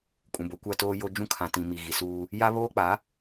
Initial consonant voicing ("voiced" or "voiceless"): voiceless